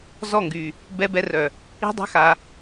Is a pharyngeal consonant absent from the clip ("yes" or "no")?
yes